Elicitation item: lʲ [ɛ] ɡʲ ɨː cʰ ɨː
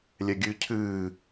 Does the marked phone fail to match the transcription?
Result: no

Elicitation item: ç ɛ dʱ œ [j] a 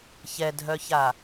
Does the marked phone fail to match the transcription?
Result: yes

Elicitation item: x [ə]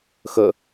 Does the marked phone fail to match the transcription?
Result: no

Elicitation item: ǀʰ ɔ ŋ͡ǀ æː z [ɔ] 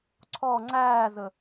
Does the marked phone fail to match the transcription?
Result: yes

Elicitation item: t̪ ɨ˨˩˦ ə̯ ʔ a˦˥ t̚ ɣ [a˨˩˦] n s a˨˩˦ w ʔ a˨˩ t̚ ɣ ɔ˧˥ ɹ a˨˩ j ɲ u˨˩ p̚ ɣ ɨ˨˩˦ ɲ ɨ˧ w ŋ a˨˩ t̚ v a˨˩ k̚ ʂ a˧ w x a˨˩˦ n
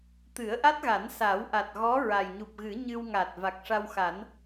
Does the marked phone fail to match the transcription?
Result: no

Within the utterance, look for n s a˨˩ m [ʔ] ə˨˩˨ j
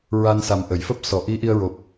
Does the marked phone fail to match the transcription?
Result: no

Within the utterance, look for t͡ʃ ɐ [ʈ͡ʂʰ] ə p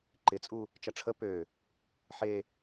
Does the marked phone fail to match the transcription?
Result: no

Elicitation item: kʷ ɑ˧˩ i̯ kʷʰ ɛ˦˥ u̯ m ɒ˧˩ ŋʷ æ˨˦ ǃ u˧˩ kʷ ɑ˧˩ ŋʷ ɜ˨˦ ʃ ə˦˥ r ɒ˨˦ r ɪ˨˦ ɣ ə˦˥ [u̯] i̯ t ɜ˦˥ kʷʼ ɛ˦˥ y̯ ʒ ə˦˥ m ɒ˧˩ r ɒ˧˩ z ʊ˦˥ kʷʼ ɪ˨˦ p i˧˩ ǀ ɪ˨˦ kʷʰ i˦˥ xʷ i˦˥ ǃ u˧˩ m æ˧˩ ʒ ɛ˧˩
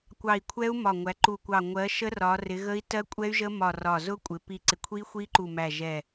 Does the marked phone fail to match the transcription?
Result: yes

